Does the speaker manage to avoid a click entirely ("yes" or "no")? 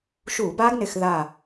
yes